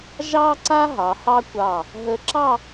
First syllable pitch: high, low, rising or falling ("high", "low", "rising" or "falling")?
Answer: high